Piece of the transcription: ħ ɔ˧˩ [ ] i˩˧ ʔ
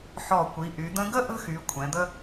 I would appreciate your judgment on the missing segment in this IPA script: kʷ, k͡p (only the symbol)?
kʷ